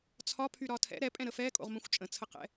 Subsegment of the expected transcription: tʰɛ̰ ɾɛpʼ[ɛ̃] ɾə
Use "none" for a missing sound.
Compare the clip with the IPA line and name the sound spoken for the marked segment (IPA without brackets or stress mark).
ɛ̃